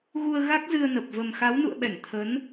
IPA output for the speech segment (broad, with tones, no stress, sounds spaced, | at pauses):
ɣ u˧ ə̯ ɣ a˦˥ k̚ z ɨ˧ ə̯ n ə˨˩ p̚ v ə˨˩ m x a˨˦ w n ṵ˧˨ ə̯ ɓ ɛ˧˩ ŋ t̪ʰ ə˨˦ n